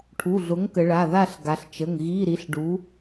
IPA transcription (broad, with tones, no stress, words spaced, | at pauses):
ʈʰu˩˧˩ɮʊ˨˥ŋkə˩˧ ɭa˩˧˩ða˦˨ɬɡa˩˧ɬt͡ʃə˩˧˩ŋ ɣi˧˥˧ɾi˨˥ɬɖu˨˥